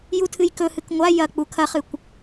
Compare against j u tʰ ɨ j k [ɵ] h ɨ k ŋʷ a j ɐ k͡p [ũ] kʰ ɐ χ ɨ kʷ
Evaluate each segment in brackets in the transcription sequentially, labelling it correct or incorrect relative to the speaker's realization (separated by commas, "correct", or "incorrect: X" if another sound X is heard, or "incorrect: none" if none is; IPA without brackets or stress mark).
correct, incorrect: u